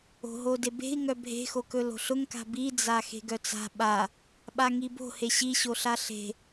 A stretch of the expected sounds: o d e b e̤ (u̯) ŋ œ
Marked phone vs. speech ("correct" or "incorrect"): incorrect